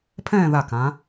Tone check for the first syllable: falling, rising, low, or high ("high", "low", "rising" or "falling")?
falling